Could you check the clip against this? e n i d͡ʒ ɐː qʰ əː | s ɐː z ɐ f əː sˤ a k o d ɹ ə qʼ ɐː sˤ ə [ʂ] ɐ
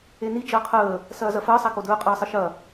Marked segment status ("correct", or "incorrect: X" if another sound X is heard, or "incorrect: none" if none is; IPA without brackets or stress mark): incorrect: ʃ